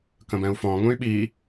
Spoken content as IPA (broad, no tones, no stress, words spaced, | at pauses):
kə̃bɛ̃u̯fɔ̃ ŋũy̯ɓi